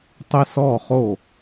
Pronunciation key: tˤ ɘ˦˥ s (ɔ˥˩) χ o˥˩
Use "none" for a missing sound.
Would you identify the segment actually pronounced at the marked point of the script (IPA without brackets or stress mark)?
ɔ˥˩